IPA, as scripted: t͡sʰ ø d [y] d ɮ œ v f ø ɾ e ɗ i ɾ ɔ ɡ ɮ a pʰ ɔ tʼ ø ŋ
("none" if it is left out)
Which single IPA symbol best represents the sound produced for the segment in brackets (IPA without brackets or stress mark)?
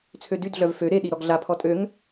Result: y